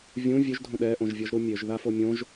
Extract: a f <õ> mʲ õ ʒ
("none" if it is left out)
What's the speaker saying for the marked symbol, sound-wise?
o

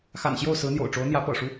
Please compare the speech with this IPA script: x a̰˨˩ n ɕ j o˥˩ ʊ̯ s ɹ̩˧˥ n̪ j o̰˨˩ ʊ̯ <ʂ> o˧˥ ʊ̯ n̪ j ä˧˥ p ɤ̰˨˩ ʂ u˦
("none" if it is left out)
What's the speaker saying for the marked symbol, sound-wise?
ʈ͡ʂ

